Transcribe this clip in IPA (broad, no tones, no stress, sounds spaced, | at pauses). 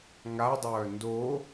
ŋ a dˤ œː n d o